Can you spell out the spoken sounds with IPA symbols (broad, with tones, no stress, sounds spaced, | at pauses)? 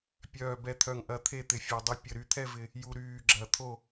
pʲ œː˨˩ b ɛ˨˩ t̪ʰ œ˨˩ ŋ ʔ ɐ˨˩ t̪ʰ e˦˨ t̪ ɪ˨˩ fʲ ɛ˨˩ dˤ ə˦˨ pʲ ə˨˩ ɾ y˨˩ t̪ʰ ɛ˦˨ v ɪ˨˩ | j u˨˩ ɾ yː˨˩ ɡ͡ǁ ɐ˨˩ t̪ʰ o˦˨